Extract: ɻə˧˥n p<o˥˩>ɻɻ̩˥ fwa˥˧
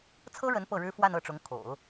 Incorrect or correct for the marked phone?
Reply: incorrect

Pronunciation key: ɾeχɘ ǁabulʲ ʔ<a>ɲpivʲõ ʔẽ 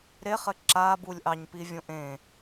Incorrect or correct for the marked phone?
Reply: incorrect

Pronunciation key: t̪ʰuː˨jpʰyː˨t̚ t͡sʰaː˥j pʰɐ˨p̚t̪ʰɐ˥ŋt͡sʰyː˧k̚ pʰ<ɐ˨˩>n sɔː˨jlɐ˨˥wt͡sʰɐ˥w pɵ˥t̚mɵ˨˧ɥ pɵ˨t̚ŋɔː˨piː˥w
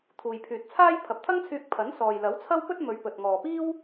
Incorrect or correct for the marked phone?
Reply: incorrect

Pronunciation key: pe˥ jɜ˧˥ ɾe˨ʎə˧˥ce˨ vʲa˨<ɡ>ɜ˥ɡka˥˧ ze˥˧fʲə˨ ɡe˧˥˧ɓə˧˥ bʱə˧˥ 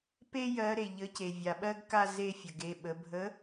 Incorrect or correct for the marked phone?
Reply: incorrect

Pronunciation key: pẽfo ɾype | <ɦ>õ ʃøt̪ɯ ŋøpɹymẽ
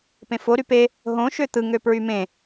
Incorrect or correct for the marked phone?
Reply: correct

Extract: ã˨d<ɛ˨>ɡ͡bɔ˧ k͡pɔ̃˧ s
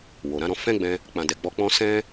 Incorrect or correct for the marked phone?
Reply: correct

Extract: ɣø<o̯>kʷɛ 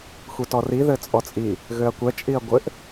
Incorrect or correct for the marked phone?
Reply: incorrect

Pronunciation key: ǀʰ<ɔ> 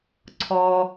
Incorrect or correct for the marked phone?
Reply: correct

